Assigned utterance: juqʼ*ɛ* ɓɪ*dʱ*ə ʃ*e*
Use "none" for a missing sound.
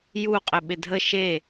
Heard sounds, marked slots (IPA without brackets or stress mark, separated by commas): ɪ, dʱ, e